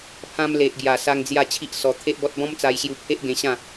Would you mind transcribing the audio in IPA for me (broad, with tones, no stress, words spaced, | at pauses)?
pʰã˧mle˨ʔɡja˨˩ sa˧ŋ d͡zja˥˧ t͡ɕʰi˦ʔ sɔ˧ t̪ʰe˦ʔbɔ˦t̚ bɔ̃˦mt͡sa˧jɕju˧ pʰe˦ʔɡẽ˧ɕã˥˧